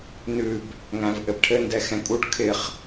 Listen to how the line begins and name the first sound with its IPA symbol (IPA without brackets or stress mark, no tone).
n